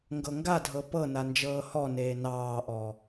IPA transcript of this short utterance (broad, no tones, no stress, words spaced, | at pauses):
ŋɡɤŋɡadʱɤ pɤna nd͡ʒɤːhɔneː nɑːʔɔ